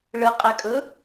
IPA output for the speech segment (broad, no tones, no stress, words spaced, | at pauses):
ɭəqʼækʼɵ